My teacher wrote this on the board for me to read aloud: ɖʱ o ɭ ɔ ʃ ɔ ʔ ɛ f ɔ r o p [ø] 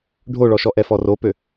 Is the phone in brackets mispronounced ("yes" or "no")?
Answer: no